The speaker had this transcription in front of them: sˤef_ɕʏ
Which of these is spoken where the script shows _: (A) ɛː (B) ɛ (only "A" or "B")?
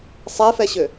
B